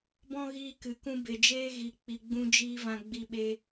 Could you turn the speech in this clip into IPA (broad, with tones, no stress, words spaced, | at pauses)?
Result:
bɔ̃˦ɣiː˧kɨ˨ kũ˧be˨ d͡ʒeː˧ɣi˨ k͡pi˨ɡ͡bũ˧d͡ʒiː˧ vã˧ɡ͡bi˧ ɓe˧